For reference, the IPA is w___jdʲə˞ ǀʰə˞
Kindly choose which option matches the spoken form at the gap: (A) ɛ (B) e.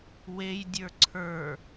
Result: B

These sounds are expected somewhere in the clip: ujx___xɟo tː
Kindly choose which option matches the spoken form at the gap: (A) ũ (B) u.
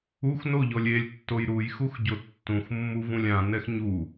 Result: B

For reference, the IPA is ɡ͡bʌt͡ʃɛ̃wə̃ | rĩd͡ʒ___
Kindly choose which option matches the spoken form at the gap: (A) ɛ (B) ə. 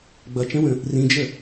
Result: B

